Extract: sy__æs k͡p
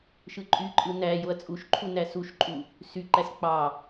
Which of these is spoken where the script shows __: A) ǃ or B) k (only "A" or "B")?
A